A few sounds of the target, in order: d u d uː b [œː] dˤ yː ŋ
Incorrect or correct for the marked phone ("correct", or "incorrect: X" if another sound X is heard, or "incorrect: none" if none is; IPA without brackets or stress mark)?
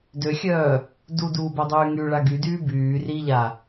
incorrect: œ